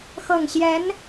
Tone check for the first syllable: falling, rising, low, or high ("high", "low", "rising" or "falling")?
low